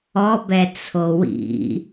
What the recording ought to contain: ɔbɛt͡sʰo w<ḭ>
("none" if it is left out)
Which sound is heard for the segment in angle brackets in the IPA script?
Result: ḭ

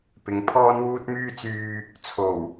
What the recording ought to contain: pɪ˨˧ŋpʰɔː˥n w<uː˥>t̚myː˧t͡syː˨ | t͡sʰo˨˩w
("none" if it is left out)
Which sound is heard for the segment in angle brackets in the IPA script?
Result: uː˧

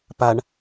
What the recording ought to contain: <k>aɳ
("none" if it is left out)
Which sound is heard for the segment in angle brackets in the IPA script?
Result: p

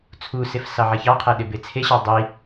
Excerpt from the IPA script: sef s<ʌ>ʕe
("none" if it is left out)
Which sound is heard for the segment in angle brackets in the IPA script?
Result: ɑ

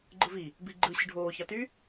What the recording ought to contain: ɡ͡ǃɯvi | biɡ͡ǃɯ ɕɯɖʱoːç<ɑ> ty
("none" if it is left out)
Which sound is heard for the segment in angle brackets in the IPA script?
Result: ɑ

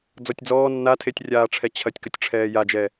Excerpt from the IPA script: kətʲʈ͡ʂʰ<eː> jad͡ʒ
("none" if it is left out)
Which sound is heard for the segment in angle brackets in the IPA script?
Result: ɛː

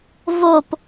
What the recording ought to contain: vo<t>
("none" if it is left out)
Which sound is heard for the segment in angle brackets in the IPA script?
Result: p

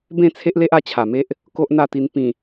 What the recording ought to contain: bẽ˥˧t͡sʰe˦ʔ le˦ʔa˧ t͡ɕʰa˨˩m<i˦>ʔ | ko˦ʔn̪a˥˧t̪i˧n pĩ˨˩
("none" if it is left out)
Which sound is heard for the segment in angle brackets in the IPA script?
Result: e˦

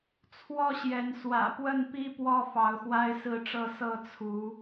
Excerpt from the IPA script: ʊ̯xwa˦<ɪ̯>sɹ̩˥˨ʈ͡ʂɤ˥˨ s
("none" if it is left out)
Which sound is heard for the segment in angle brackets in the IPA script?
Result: ɪ̯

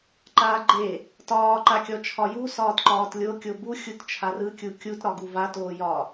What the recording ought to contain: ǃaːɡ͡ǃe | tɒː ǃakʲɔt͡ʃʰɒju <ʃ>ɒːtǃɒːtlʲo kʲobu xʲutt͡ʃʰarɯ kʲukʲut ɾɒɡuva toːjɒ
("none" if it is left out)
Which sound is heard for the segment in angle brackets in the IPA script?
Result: s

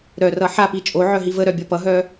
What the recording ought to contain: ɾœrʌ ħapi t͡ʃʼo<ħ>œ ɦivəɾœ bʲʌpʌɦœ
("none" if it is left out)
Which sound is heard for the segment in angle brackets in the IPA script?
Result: ʕ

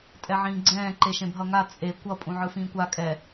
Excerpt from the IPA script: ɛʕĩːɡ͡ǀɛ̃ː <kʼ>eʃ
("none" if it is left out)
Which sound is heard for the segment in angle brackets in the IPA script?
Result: ǃ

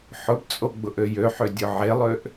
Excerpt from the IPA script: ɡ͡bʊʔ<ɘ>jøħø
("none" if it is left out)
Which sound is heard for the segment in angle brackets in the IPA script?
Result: ø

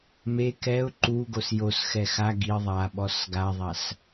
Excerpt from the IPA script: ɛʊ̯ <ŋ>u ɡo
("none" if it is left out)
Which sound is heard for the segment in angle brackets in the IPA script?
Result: ǃ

